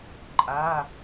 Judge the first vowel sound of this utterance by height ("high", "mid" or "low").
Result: low